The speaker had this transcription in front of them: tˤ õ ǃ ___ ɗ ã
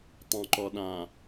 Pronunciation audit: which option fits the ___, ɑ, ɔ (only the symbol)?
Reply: ɔ